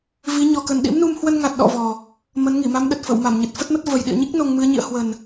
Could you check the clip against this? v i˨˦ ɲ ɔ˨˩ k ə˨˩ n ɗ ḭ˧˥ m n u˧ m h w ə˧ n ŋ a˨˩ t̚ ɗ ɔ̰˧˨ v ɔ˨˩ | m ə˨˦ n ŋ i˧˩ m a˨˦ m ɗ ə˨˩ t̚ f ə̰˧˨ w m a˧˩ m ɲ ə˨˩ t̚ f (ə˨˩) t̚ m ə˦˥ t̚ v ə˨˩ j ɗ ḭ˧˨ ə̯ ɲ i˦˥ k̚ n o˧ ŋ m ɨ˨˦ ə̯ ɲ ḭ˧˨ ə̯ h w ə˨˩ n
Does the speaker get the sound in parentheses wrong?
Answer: yes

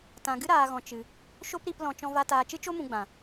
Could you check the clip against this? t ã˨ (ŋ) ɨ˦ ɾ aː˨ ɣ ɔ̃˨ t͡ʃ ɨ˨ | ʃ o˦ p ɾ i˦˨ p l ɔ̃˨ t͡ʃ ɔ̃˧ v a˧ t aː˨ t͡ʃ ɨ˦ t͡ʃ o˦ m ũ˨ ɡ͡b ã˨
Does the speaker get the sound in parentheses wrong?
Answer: yes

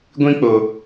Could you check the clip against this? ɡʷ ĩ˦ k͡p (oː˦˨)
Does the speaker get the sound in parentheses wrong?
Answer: yes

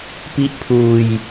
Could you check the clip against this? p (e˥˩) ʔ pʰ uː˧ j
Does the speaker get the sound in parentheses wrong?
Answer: yes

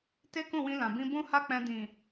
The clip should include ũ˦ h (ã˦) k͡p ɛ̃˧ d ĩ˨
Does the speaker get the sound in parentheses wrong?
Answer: yes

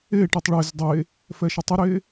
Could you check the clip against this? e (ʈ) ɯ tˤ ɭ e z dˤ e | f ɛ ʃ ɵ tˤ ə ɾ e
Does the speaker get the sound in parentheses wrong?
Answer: no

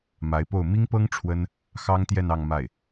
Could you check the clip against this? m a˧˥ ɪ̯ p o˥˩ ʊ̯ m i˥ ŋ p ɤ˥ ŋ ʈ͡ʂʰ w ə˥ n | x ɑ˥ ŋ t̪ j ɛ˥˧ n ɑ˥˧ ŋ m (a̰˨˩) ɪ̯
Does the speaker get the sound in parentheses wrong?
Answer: yes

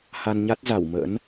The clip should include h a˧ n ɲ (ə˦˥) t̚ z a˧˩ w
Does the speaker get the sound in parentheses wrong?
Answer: yes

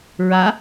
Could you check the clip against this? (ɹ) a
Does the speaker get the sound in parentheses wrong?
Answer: no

